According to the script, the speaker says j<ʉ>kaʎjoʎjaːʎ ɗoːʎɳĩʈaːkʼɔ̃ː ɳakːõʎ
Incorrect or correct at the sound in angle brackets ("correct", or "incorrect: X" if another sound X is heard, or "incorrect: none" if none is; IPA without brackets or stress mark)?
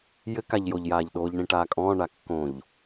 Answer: incorrect: ɘ